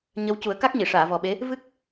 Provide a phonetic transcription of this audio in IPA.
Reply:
ɲ ə˧˥ w c u˨˩˦ ə̯ k a˦˥ k̚ ɲ i˨˩˨ ʂ aː˨˩˨ v ɔ˨˩ ɓ e˧˥ | v ɨ˦˥ k̚

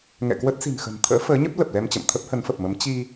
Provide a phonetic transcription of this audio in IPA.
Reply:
ŋ ɛ̰˧˨ k w ə˦˥ t̚ s i̤˨˩ n x ə̤˨˩ n t̪ʰ ə̰ː˧˥ f əː˨˦ ɲ ə˦˥ p̚ l ə˨˩ p̚ l ɛ˧ m t͡ɕ ə̰˧˨ m t̪ʰ ə˦˥ p̚ h ə˨˦ n f ə˨˩ p̚ m ə˨˦ m t͡ɕ i˧

